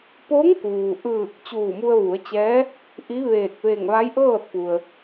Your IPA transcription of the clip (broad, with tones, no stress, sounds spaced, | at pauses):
p o˧˥ ŋ k uː˩ ʔ ɯː˧˩ k̚ t͡ɕ uː˧˩ m u˧ ə̯ ʋ u˩˧ ə̯ t͡ɕ ɛː˧˥ | ʔ i˧˥ ʋ eː˧˩ k̚ ʋ e˧˩ ŋ ʋ a˧˥ j ʔ ɤː˥˨ t̚ p u˩ ə̯